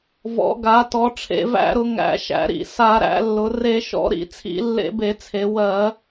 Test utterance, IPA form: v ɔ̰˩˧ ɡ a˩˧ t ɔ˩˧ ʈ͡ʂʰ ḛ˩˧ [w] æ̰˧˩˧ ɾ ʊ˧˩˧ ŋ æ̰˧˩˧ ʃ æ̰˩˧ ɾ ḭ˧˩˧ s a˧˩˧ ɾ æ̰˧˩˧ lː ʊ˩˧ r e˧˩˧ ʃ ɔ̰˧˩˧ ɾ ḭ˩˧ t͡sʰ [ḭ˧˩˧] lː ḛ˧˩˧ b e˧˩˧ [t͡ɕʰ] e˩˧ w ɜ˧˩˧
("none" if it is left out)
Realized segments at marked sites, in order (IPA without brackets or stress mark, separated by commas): v, ḭ˧˩˧, t͡sʰ